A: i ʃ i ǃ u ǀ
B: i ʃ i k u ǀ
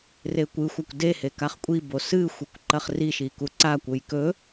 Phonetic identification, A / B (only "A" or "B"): B